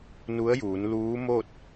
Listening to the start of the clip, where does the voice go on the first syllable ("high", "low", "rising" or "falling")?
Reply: rising